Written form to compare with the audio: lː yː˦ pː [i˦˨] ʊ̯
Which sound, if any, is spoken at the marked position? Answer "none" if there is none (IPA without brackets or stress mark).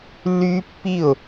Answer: i˦˨